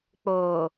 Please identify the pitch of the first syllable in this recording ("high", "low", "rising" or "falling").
low